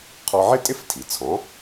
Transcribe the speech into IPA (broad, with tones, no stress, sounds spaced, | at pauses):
qʰ ɔ˧ ʕ ɪ˥ tʼ ɪ˥ f tʰ i˩ t͡sʰ ɔ̃˩˥